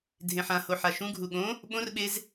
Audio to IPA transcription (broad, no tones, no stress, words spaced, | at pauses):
dʱẽħãho ħaʃũɡʱu ɠõ | ɓõrɓez